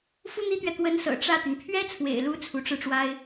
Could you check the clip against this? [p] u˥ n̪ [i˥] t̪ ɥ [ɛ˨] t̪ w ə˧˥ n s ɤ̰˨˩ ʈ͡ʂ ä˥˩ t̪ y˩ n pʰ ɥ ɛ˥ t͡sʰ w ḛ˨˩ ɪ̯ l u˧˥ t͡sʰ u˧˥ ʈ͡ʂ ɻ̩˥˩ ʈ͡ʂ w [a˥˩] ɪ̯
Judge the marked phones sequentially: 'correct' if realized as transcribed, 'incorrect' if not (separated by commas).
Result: incorrect, correct, correct, incorrect